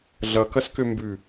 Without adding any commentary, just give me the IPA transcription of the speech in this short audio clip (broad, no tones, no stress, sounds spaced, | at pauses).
ɮ ʌ k ʌ s k ø m b ʉ